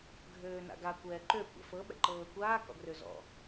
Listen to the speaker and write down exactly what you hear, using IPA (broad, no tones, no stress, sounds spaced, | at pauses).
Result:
ɡʱ øː n a̰ ɡ a kʷ ɛː ǃ ø kʷ ɛ̰ f ɤ ɓ ɛ̰ ǃ ɤː kʷ aː k ɔ̰ ɡ r ø z ɔ̰